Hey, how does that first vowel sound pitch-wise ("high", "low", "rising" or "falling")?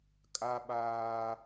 high